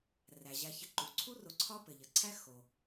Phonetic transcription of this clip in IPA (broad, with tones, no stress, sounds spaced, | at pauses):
r æ˩ ʑ æ˨ ç ə˨ ǃ u˩ ǀʰ u˦ r o˨ ǀʰ ɒ˥ p ɘ˩ ʎ ə˩ ǀʰ æ˦ x o˩